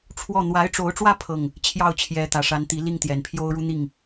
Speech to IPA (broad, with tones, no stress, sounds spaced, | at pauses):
ʈ͡ʂʰ w ɔ˥˩ n̪ w a˧˥ ɪ̯ ʈ͡ʂ o˧˥ ʊ̯ ʈ͡ʂ w ä˥˧ pʰ ɤ˥˩ ŋ | t͡ɕʰ j ɑ˥˩ ʊ̯ t͡ɕʰ j ɛ˧˥ t̪ ä˨˩ ʂ a˧˥ n t̪ i˧˥ l i˥˩ ŋ t̪ j ɛ˨˩ n pʰ j o˥ ʊ̯ ɻ u˥ n̪ i˥˩ ŋ